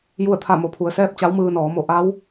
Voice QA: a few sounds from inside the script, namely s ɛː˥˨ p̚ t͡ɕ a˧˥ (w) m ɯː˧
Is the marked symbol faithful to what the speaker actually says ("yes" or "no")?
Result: yes